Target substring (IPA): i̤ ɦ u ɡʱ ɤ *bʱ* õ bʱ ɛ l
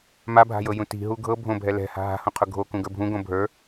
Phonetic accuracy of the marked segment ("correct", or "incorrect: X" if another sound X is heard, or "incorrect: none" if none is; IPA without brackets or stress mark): correct